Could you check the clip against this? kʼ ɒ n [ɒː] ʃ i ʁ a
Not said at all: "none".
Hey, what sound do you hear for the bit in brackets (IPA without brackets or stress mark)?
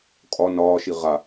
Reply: ɒː